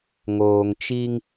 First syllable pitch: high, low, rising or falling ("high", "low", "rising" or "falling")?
low